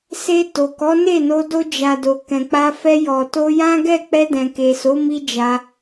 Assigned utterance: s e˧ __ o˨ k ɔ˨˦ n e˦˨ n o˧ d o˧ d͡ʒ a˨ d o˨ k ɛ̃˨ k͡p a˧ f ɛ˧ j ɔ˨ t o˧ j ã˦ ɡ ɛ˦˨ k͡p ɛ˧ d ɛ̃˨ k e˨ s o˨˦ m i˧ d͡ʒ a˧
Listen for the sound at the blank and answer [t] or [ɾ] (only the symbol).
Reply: t